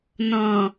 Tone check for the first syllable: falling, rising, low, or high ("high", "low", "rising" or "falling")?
low